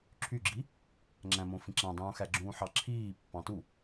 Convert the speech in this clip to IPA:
ǁʰ y ɡ͡ǁ i | ŋ͡ǁ æ̃ m õ f ĩ ǁ æ̃ dˤ ũː x æ ɡ͡ǁ ũː ħ ɑ ǁʰ iː pː ɑ̃ t u

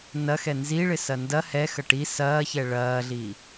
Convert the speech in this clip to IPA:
n ɐ x ɛ n z i ɭ ɪ s ɐ n d ɐ h ɛ x ɐ ʈ i s ɐː ç ɛ ɭ ɐː ɮ i

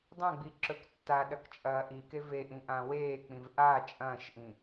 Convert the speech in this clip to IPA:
dˤ ɐ̃ ɡ͡b i ǁ ɵ k tː a ɗ ɐ k t͡ʃʼ ɐː ʔ i k e v e ʔ ĩ ʔ ã w eː k͡p ĩ v ʔ a t͡ʃʼ ɐ̃ː ʃ ʔ ĩ

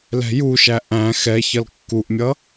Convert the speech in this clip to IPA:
l ɛ̤ j u ʃ æ ʔ æ̃ x ɛ ç ʌ l kː u ʔ mʲ ʌ

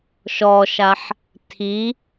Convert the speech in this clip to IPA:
ʃ ɔ ʃ a ħ | tʰ i

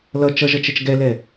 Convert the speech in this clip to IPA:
l ʌ t͡ʃ ʌ ʒ ʌ t͡ʃ ɛ t͡ʃ ɡ ɛ l ɛ

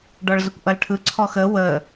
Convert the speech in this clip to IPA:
ɖ ɔ ɭ z ə kʷ ʔ ʌ l ʈʰ ɯ ǀʰ ɔ x ə w ə

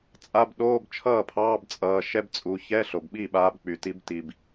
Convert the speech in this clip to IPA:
t͡sʼ a˧˥˧ b ɗ oː˧˥˧ b t͡ʃʰ ʌː˥˩ pʰ ɑː˧˥˧ b t͡sʼ ʌː˩˧˩ ʃ ɛ˥ b t͡sʼ u˩˧˩ ç ɛ˧˥˧ ɬ o˩ b ɓ i˥˩ ɓ aː˨˦ b k͡p y˩ t i˨˦ b t i˩ b

